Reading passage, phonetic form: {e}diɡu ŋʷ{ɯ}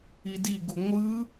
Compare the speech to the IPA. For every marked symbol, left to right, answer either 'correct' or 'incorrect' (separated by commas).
incorrect, correct